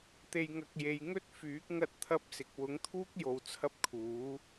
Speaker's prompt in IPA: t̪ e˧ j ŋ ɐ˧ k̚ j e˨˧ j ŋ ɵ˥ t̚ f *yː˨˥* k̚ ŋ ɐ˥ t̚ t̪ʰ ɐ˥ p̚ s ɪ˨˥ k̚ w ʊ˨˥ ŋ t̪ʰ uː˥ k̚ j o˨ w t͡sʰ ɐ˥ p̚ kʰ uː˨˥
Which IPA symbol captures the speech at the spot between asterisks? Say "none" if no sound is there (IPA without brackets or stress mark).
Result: yː˨˥